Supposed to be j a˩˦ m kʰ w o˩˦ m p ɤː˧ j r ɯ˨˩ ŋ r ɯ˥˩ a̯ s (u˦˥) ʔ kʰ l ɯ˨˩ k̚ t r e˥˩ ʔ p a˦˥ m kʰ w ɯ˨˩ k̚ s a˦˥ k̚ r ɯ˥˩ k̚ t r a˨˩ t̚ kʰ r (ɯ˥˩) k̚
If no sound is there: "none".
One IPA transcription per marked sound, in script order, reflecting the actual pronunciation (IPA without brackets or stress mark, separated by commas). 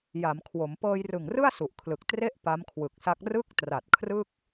u˨˩, ɯ˥˩